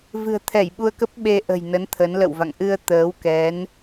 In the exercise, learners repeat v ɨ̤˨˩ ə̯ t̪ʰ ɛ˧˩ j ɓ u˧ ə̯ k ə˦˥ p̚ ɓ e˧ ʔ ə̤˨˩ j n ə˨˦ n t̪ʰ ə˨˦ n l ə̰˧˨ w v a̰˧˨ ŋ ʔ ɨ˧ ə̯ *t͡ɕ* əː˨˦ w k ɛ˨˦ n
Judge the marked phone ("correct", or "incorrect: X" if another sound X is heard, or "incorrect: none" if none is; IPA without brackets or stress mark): incorrect: t̪